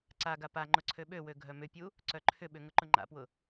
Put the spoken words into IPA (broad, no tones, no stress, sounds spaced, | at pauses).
ǀ a ɡ a p a ŋ͡ǃ ʊ ǀʰ ø ɓ ø w ø ɡʱ œ m ʏ pʲ u | ǀ œ ǃʰ ʏ ɓ ʏ ŋ ʊ ǃ ʊ ŋ͡ǃ a̰ p w ʊ